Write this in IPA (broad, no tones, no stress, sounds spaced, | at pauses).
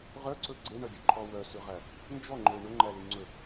ʁ œ ǀ ɵ ɡ͡ǀ e ɳ œ ɡʲ ɵ ǃʰ ɔ w œ s ʉ ʁ æ | n d͡ʒ ɔ ŋ͡ǃ ɵ ɪ̯ ɳ ɵ ŋ͡ǃ æ l y ŋ͡ǀ ɵ p